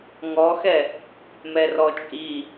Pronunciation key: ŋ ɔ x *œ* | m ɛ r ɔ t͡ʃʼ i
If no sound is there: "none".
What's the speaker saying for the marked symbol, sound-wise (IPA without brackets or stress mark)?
ɛ